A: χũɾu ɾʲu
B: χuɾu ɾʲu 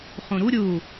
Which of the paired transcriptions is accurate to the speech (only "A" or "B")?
A